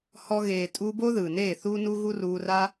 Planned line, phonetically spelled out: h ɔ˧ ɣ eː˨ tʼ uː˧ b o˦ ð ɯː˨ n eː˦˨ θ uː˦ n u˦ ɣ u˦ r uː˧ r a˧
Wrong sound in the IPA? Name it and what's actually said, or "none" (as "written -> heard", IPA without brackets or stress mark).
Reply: none